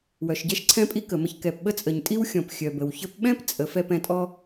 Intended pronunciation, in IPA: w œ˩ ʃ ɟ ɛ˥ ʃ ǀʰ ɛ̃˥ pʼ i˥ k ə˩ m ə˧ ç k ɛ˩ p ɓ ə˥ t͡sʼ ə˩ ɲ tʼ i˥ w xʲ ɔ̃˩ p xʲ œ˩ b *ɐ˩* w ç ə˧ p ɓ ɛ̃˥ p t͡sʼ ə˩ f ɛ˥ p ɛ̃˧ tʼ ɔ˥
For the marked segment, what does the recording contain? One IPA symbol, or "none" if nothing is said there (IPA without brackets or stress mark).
ə˩